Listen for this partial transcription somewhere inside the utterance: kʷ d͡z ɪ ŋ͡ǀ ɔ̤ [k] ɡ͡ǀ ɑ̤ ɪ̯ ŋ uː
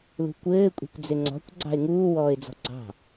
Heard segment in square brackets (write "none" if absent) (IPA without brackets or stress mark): kʷ